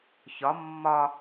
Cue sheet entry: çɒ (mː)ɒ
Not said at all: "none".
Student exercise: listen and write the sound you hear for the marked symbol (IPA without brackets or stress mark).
mː